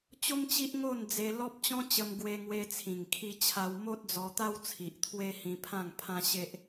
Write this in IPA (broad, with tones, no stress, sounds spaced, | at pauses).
t͡ɕ o˦ m t͡ɕ i˦ ʔ ŋ o˥˧ n d͡z e˧ l ɔ˦ p̚ t͡ɕ ɔ̃˦ t͡ɕ ə˧ m ɡ w e˧ ŋ w e˧ t͡sʰ ĩ˨˩ ŋ kʰ i˧ t͡ɕʰ a˧ w m o˦ t̚ d͡z ɔ˧ t̪ a˦ w t͡sʰ i˨ ʔ t̪ʰ w e˦ h ĩ˧ pʰ ã˥˧ ŋ pʰ ã˦ ɕ e˦ ʔ